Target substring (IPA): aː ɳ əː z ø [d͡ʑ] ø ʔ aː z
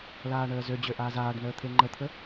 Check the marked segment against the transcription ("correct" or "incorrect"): correct